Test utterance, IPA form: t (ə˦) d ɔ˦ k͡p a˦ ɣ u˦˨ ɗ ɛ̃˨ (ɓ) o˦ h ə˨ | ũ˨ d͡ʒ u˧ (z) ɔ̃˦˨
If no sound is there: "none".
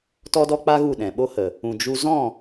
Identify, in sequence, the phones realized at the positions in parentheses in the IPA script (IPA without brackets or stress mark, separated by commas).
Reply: ɔ˦, ɓ, z